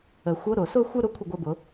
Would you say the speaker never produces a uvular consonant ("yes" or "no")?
yes